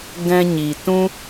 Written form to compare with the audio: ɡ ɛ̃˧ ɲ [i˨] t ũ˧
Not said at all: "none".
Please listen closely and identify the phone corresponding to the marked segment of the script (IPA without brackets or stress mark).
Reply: i˨